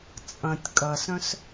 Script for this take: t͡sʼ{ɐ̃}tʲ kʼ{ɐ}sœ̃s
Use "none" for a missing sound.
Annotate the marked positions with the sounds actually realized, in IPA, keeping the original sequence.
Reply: ɐ̃, ɐ

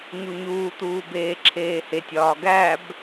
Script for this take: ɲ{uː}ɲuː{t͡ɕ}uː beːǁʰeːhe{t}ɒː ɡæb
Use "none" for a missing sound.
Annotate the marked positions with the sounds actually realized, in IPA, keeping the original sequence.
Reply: u, t̪, tʲ

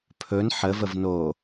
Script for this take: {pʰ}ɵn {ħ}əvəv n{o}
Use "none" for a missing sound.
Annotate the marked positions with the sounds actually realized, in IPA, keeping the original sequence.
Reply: pʰ, ħ, o

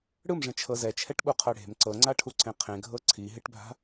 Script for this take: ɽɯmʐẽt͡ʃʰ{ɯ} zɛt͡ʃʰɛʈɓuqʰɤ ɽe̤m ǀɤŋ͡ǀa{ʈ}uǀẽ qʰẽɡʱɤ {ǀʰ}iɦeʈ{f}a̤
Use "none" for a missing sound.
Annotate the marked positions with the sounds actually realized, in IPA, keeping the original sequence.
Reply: ɤ, ʈʰ, ǀʰ, bʱ

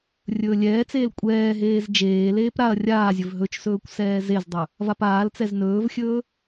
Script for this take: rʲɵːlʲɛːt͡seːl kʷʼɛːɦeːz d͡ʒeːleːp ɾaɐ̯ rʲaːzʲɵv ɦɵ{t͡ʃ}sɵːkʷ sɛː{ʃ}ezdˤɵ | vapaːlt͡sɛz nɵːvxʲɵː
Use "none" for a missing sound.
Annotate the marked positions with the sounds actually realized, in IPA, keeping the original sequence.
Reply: t͡ʃ, z

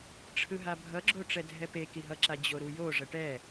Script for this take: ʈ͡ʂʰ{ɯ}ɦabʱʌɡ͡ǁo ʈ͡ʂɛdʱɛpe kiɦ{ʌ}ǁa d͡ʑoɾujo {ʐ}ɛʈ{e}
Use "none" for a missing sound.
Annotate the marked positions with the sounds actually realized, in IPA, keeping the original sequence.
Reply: ɯ, ʌ, ʐ, ɛ

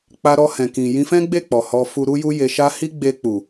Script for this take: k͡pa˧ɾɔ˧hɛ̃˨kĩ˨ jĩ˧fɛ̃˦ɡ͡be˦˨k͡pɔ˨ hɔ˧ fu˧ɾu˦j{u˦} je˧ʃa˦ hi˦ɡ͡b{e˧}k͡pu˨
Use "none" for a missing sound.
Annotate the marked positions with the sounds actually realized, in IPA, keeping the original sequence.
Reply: u˦, e˧

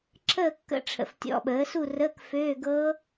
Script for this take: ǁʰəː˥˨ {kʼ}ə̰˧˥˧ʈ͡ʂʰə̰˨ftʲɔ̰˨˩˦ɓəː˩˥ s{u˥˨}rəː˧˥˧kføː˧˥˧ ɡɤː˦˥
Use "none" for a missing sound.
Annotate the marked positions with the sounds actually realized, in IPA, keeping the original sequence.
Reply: kː, u˥˨

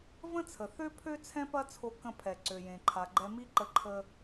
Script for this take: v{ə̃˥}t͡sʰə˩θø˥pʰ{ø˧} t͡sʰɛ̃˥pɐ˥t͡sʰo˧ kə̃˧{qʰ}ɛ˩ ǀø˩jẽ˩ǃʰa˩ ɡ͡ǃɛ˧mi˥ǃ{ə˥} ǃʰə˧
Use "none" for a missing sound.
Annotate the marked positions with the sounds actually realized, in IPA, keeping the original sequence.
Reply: ə̃˥, ø˥, pʰ, ə˧

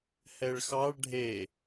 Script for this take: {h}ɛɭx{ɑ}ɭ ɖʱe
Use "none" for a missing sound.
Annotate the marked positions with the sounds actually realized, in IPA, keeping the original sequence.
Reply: h, ɑ

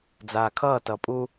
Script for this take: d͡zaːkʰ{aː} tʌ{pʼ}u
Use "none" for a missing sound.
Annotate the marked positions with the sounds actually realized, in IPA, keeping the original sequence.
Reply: ʌː, pʼ

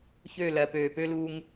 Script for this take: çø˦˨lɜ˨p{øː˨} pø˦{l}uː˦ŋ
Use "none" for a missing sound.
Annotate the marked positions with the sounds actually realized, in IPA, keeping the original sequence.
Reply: øː˨, l

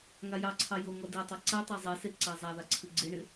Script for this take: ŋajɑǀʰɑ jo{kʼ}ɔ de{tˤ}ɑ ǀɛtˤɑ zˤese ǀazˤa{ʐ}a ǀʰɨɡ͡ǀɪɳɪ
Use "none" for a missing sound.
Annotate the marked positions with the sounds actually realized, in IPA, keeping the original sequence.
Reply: ŋ, tˤ, ð

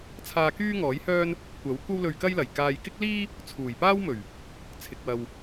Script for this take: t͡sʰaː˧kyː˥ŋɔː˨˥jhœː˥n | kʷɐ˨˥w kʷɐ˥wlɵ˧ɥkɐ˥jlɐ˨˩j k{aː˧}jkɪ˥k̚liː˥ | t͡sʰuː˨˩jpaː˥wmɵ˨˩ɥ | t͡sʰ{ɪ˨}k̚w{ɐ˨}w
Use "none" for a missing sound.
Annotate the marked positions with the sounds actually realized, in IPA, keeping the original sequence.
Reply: aː˨, ɪ˨, ɐ˨

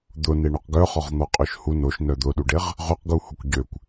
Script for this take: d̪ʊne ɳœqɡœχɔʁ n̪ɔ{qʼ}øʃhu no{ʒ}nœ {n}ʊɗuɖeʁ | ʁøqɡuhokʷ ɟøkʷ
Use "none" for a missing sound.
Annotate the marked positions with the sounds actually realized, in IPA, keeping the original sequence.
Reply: qʼ, ʃ, d̪

